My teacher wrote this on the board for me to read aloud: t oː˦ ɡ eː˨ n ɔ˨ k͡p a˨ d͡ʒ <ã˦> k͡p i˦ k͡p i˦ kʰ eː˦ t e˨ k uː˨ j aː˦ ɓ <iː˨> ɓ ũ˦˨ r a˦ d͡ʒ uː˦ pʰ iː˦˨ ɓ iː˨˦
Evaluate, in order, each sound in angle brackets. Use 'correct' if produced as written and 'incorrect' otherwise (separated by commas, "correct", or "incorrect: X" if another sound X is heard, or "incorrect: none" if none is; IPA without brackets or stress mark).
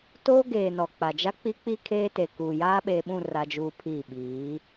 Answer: incorrect: a˦, incorrect: eː˨